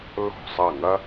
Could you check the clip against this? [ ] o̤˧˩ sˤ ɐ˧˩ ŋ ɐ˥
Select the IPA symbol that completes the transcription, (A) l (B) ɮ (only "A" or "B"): A